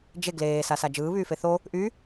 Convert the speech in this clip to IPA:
d͡ʒe ɡleː sasad͡ʒɯː βyːfeθo | ʔy

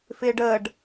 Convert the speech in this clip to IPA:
fɪːɖəːɖ

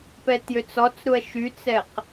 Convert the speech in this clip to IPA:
pɛtjøt͡sɔt͡sɾuɐ̯ ʃyt͡sɛq

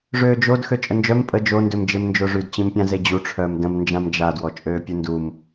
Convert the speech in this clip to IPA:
ʐøːd͡ʒod xøt͡ʃʼənd͡ʒœm pʼə d͡ʒondømd͡ʒem nd͡ʒoʐydt͡ɕĩmpʲã zed͡ʑuʈ͡ʂʰœːm də̃m nd͡ʒãmd͡ʒadwɔ t͡ʃʼøːpʲundum

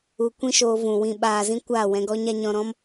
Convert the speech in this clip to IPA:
u˧kʷĩ˦ʃoː˧vũ˨ wĩ˨ɓaː˨zĩ˧ kʷaː˦˨wɛ̃˧ɡɔ˦ɲa˦ ɲɔ̃˧ɾɔ̃˦m

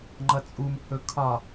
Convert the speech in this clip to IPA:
ŋ͡ǃʌt͡sʼumhɵ kʰɒ

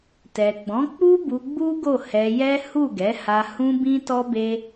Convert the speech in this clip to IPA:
tɛ˨ɡ͡bɔ̃˨˦k͡pu˦ bu˧ɡ͡bu˦ɡo˦˨ hɛ˧jɛ˦ hu˦˨ɡɛ˨˦ha˧ hũ˦bĩ˦ tɔ˦be˦

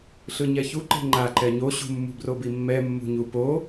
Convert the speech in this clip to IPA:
ɬɯɲɛçuǃe̤ ŋ͡ǃaǃɛ ɲoɕṳmːṳ brobimːɛmːṳ ɲupo

